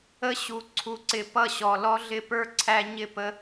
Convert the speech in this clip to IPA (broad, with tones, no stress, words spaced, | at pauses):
ə˦ɕu˨ ǀʰu˨ǀɪ˨ pʌ˦˨ɕɔ˨lɔ˦ ɮɪ˦pə˞˦ǀʰæ˦ ɲɪ˦˨pə˦